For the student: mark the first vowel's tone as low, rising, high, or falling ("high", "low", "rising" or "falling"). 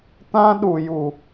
high